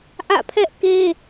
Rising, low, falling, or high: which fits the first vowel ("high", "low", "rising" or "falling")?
falling